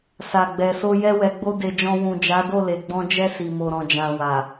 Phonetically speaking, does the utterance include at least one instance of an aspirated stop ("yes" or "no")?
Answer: no